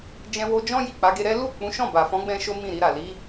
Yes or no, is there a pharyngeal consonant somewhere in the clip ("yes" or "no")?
no